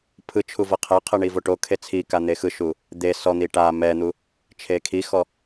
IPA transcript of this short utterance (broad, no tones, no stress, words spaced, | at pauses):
pʰɯt͡ʃʰu vɤqʰɛqʰɯ ɳivoʈokʰe t͡sʰi kan̪exɯʃu | d̪e sɔn̪i ʈa mɛn̪u | t͡ʃʰekʰixɔ